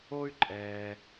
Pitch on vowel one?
high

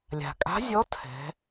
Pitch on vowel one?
low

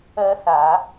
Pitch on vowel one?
high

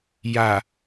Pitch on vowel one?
low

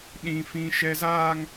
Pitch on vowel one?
high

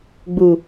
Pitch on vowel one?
low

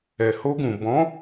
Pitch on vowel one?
low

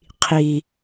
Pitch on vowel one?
low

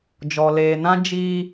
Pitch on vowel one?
low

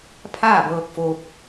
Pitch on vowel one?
falling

